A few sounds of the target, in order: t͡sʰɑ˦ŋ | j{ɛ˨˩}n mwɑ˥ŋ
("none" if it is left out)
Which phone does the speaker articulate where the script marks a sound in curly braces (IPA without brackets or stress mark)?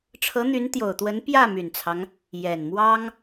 ɛ˨˩